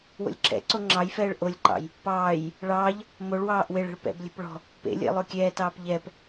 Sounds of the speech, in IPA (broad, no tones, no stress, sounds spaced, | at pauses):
w o̰ lʲ ǁʰ ɛ̰ ǀ o ŋ͡ǁ ɑ j f ɛː ɭ ʔ o lʲ ǃ ɑ̰ j | p ɑː j | ɭ ɑː ʎ | m o ɭ w ɑː ʔ w e ɭ ɛ̤ ɭ p ɛ̰ b lʲ ɛ̤ p ɭ ɔ̤ | p ḛ lʲ ḛ lˠ o kʲ ɛː t ɑː p ʎ ɛ p